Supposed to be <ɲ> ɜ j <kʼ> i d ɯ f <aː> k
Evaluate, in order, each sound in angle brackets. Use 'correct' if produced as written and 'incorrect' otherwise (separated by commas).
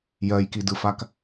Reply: incorrect, incorrect, incorrect